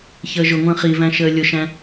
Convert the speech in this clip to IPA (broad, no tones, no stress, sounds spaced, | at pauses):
ç əː ʒ ʊ ŋʷ ə̃ː χ i v æ̃ ʃ əː lʲ ʊ ʃ æ̃